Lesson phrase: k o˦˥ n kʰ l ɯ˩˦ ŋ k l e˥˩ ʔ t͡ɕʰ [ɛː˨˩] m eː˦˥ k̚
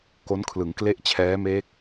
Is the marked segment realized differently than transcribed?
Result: yes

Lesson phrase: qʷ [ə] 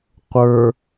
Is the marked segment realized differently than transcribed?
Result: yes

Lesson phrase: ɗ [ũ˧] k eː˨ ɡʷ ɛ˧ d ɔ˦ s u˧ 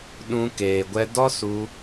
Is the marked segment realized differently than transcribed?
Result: no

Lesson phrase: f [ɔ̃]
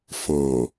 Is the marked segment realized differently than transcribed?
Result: no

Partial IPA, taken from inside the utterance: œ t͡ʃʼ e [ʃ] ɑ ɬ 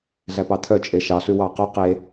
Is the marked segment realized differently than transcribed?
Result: no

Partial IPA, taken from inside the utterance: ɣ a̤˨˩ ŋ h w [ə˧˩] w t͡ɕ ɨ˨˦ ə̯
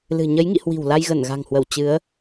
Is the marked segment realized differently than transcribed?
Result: no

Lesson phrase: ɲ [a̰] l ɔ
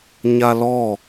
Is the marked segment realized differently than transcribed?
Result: yes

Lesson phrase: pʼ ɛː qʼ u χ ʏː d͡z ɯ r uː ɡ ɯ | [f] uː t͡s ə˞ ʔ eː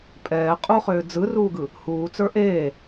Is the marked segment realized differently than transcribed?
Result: yes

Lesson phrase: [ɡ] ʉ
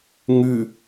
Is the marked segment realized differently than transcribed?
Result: yes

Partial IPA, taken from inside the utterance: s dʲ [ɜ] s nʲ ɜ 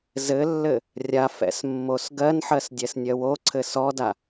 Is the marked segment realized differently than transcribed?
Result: yes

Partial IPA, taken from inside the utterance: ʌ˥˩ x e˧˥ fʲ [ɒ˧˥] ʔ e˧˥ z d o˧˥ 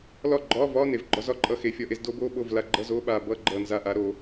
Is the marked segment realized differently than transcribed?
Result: no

